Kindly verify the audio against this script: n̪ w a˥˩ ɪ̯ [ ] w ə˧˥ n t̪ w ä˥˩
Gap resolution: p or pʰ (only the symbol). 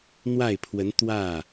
pʰ